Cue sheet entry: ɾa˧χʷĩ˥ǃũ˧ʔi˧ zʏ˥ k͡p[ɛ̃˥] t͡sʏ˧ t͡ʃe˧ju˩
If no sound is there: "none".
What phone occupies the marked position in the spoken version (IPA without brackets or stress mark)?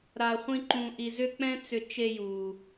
ɛ̃˥